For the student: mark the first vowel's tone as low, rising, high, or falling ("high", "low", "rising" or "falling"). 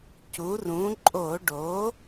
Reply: rising